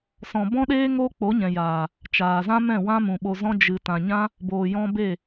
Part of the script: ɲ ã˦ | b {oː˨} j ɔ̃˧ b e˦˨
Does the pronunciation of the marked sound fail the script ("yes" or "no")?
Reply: no